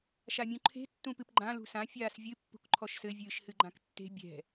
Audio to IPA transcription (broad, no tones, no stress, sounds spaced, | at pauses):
ʃ a mʲ ũ ǃʰ e̤ tː ũ p ɨ p ɡ͡ǃ ã l ṳ s ã fʲ aː s vʲ ɨ pː ṳ k ǃʰ ɔ ʃ s ɘ vʲ ɨː ʃ h ɨ ɡ͡ǃ ã k tː e̤ bʲ ɛ̤